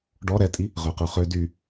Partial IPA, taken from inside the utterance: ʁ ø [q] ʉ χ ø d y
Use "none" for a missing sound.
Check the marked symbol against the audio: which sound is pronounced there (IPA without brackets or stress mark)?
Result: q